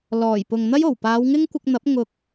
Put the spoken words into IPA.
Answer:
lɔː˨˩j pʊ˨ŋn̪ɐ˥jo˨˩w paː˨˧wŋɪ˥ŋkʷɪ˧k̚n̪ɐ˨˥p̚ ŋʊ˧k̚

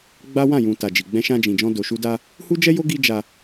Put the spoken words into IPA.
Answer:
ɡ͡ba˦wã˦˨ jũ˨ ta˨d͡ʒi˨ ɡ͡bɛ̃˧ʃã˧d͡ʒĩ˨d͡ʒɔ̃˧ do˨ʃu˧da˧ | hu˦d͡ʒɛ˦jo˦ ɡi˦ d͡ʒa˧

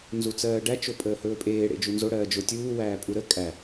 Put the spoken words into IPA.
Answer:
nzut͡sɜːɖæ t͡ʃopʼəːhɵːpʼeː ɽḛd͡ʒunzo ɽɜːd͡ʒotʲuː wæːpʼuɾə kʼæ

